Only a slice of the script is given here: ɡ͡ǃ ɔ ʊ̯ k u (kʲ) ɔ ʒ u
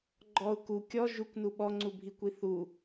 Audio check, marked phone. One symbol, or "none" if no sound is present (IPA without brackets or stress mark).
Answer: kʲ